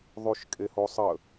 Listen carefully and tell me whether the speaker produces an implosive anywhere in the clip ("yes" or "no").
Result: no